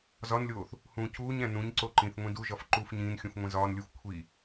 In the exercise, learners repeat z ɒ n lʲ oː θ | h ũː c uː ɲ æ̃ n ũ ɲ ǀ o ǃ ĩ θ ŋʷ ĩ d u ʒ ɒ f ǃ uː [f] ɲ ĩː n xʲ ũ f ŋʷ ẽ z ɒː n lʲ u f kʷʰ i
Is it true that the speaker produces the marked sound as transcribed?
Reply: yes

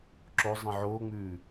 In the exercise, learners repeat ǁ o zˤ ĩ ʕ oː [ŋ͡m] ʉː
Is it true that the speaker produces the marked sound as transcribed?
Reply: yes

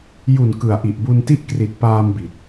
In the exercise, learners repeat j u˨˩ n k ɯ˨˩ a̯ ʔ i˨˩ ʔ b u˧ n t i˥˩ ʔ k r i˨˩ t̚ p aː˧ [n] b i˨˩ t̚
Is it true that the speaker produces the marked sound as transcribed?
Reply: no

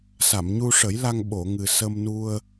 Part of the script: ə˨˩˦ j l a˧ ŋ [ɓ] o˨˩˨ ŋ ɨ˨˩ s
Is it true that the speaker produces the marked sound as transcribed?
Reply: yes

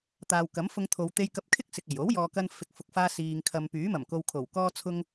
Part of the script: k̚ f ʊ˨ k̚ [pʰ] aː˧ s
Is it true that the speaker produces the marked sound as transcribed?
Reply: no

